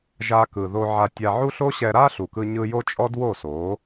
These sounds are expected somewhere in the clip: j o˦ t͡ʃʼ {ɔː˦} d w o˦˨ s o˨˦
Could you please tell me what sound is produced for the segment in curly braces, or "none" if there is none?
ɔ˦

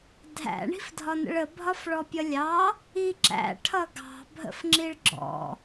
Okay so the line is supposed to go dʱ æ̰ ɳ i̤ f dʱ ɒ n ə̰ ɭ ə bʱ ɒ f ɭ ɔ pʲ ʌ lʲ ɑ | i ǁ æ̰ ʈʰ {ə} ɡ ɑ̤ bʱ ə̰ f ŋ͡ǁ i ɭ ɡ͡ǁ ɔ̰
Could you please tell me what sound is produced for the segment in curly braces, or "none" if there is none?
ʌ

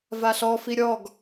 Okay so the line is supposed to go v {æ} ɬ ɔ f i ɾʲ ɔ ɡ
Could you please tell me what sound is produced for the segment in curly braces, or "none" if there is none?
a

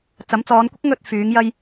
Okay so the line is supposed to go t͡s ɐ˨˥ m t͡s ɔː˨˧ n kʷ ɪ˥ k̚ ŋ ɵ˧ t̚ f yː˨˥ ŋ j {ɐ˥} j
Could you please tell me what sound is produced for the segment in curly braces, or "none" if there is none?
ɐ˥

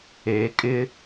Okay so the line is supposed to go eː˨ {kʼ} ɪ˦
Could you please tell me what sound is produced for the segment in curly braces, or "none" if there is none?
kʼ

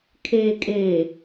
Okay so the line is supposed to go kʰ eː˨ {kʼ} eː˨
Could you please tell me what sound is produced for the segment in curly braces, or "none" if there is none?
kʼ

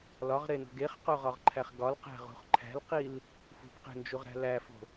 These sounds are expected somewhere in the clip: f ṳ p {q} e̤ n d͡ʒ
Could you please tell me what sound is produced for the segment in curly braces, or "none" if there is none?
q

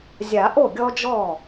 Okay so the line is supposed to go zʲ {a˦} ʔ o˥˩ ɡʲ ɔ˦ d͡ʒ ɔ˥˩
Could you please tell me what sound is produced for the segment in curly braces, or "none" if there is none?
a˨˩˦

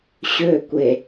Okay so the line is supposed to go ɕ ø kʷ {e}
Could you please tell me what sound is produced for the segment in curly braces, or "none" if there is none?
e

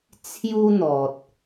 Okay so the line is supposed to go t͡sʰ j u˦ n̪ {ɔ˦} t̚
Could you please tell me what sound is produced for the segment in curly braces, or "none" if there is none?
ɔ˨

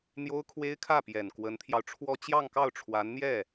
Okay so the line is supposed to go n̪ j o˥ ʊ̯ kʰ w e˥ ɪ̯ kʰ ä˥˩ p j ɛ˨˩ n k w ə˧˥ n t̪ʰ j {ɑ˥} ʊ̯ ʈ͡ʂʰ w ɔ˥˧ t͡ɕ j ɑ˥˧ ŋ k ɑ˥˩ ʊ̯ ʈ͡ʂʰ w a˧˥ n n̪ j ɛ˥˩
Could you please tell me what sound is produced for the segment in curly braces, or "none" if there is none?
ɑ˧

